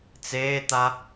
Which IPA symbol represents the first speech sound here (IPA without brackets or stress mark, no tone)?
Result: t͡s